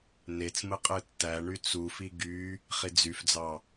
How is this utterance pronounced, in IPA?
n e t͡s m ɯ qʼ ɯ tː æ ɳ y t͡s u f i ɡ y | χ i d͡z y f d͡z ɑ

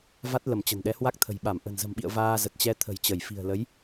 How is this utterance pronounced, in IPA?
v a˦˥ t̚ l ə˧˩ m t͡ɕ ə̤˨˩ n ɗ ɛ˨˦ h w a˦˥ k̚ t̪ʰ ə̤˨˩ j ɓ a˧˩ m ʔ ə̤˨˩ n z ə̤˨˩ m ɓ ḭ˧˨ ə̯ v aː˧ z ə˨˩ t̚ t͡ɕ ɛ˧ t̪ʰ ə̤˨˩ j t͡ɕ ə˧˩ j f i̤˨˩ ə̯ l ə˨˦ j

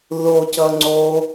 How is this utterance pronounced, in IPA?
ð o c ʌ ŋ͡ǀ o

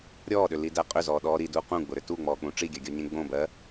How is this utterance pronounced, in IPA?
ɾʲ ɔː ɗ ʏ l i d æ qʼ ʏ z ɔː ɗ ɔː ɾ i d uː q ũ ɡ͡b ʊ ɾ ʏ t u ŋ͡m ɔː k͡p ũ ʈ͡ʂ i ɡʲ ɜ ɡʲ ɔ ɲ ẽ ɡ͡b õ b ɜ

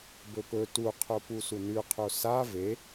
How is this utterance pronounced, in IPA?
b ɵ p ɵ t u qʰ o p u s u n ʉ qʰ o s a v e

